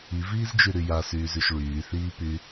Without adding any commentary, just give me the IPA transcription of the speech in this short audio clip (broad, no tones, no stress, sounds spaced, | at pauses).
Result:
i v iː z d͡ʒ y ɾ y j a s yː z y ʃ ɭ yː θ iː p y